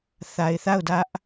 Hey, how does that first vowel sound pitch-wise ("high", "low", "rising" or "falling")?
low